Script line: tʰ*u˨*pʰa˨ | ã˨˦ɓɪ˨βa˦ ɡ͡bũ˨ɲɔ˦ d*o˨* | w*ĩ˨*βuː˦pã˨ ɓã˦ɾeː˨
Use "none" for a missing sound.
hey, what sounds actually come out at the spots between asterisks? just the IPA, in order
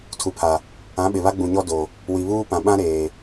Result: u˨, o˨, i˨

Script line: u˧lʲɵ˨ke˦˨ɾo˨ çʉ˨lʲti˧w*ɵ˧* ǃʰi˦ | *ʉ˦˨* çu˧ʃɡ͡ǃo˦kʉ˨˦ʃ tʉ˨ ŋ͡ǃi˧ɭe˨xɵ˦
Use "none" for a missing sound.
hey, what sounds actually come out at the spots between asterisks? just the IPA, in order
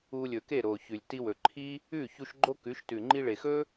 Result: ɵ˨, ʉ˦˨

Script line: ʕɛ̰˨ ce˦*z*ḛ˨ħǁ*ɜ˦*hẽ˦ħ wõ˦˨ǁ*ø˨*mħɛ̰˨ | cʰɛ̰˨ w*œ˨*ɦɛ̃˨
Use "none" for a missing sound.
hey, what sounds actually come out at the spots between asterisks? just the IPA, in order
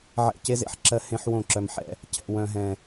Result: z, ɜ˦, œ˨, œ̃˨

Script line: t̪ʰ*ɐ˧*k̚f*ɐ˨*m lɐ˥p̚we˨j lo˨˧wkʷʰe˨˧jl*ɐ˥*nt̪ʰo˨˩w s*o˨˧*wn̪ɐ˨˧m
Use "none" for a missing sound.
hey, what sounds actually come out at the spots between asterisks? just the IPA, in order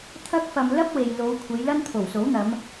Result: ɐ˧, ɐ˨, ɐ˥, o˨˥

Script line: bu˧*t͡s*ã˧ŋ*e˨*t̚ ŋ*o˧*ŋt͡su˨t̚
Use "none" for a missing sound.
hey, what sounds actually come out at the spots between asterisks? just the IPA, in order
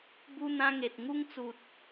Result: n̪, e˨, u˧

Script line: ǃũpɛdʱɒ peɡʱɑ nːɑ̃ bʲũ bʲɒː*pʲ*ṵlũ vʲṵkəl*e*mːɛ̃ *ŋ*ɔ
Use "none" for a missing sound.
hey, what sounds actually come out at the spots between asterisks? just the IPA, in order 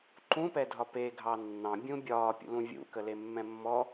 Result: pʲ, e, mː

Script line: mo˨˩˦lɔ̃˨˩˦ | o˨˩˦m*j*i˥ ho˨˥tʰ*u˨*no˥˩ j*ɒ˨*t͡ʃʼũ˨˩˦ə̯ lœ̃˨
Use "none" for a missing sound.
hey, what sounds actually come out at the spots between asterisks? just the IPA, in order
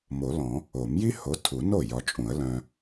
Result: j, u˨˩˦, ɒ˨

